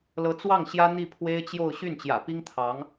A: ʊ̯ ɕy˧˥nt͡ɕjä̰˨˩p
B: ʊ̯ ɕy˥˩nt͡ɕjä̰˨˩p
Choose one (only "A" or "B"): B